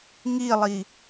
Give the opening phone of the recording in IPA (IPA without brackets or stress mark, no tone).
ŋ